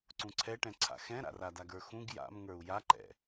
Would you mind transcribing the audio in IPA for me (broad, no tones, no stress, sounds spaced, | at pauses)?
ǀ ũ ǀʰ ɛ ʈ ɛ̃ ǀʰ a̰ x ɛ̃ ɾ a̰ r a d a ɡ ə˞ x ũ ɡ j a̰ m ŋ ə˞ u̯ j a ǃ ɛ̰